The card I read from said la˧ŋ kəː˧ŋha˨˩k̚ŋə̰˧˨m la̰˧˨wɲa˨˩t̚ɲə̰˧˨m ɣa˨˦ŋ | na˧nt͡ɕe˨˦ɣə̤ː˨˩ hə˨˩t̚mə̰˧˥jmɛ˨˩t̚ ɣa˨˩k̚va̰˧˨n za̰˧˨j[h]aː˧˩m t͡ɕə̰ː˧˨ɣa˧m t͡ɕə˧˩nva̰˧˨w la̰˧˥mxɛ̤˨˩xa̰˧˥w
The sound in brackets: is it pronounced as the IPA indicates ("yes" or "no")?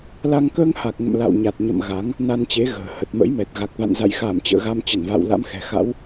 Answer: no